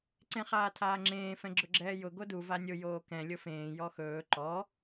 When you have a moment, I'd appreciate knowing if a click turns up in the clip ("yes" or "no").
yes